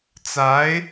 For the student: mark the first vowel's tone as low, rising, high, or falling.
rising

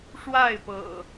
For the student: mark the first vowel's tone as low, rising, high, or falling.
falling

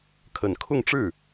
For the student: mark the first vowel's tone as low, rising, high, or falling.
low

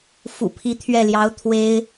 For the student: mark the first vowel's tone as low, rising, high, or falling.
low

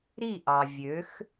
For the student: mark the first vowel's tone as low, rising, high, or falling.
falling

